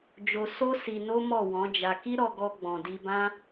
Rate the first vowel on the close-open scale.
mid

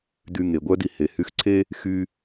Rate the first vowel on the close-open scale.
close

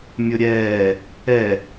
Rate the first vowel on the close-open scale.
close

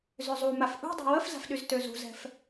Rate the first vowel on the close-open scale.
mid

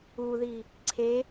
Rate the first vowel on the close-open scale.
close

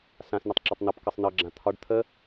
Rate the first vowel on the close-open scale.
open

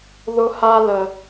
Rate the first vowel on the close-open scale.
close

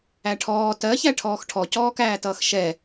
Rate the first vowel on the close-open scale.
open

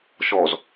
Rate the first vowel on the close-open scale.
mid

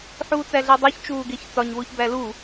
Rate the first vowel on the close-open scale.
close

